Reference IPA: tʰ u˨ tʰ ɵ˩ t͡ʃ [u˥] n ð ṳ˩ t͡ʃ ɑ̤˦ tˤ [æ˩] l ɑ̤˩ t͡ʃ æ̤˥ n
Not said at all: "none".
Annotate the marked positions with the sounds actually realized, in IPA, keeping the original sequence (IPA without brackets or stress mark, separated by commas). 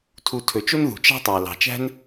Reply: o˥, æ˩